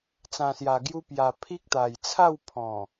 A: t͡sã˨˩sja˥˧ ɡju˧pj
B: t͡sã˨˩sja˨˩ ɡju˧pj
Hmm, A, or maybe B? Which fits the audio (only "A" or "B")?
B